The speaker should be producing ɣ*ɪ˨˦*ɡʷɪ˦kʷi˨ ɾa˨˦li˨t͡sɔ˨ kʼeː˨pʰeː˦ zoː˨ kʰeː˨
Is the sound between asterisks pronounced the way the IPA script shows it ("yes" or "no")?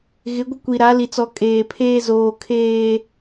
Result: yes